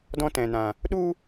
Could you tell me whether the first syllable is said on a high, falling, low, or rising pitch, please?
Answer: high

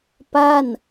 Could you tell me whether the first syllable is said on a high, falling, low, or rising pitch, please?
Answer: falling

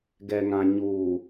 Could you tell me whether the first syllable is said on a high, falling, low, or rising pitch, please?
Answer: low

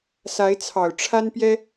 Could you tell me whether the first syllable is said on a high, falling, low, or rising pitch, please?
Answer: rising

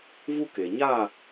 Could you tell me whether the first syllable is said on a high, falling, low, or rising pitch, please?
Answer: high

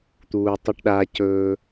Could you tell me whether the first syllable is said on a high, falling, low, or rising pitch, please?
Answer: low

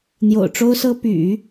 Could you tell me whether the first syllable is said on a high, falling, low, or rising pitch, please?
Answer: low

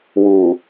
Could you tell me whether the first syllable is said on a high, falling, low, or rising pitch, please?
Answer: low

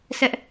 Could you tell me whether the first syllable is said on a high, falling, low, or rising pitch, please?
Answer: high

